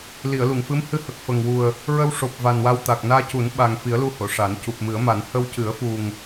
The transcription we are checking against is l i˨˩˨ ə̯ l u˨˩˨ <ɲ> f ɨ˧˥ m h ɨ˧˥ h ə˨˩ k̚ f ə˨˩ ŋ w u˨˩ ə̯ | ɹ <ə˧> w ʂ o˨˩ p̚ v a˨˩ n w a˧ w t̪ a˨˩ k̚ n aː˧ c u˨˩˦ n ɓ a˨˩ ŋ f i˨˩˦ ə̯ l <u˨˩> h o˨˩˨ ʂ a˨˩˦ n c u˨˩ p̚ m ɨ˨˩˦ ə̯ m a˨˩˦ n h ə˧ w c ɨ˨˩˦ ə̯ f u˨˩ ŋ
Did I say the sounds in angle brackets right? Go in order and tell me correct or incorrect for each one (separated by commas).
incorrect, correct, incorrect